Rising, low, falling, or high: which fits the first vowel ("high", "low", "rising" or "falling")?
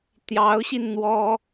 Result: rising